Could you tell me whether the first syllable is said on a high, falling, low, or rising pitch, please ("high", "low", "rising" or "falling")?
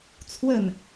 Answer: falling